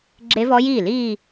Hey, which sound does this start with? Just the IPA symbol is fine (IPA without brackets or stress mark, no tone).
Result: ɡ͡ǁ